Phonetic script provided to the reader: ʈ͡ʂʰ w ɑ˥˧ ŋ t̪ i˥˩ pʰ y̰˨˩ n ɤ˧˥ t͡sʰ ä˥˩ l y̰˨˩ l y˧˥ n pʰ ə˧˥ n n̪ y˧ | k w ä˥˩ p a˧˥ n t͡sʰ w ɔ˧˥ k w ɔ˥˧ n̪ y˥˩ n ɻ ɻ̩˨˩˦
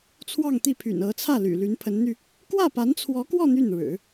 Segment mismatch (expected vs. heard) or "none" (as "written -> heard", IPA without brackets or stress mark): ʈ͡ʂʰ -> t͡sʰ